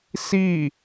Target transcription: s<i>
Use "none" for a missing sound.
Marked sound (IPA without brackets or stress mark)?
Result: i